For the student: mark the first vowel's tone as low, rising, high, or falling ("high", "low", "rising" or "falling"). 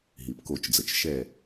low